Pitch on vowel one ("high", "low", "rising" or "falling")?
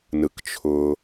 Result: low